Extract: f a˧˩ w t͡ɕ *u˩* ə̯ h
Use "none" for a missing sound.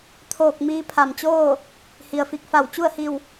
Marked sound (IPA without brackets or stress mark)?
u˥˨